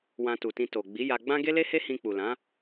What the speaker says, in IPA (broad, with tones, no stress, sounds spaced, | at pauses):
w ã˧ t u˨ t ĩ˧ t o˨ ɡ͡b i˨˦ j a˧ ɡ͡b ã˦ ɡ e˦ l e˦ h e˦ h ĩ˧ k͡p u˨ l ã˨˦